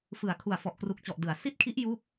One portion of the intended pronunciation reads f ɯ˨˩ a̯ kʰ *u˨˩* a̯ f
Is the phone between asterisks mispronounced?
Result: no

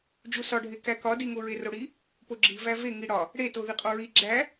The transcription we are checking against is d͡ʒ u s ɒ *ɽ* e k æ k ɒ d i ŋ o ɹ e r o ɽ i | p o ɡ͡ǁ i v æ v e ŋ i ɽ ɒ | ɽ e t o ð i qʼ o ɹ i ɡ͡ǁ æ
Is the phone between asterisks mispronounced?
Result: yes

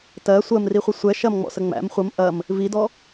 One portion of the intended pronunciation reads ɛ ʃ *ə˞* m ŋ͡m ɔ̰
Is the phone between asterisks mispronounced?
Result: yes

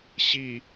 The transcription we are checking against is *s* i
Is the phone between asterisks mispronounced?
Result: yes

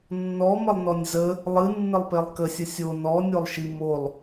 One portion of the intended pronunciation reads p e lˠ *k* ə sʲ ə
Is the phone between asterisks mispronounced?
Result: no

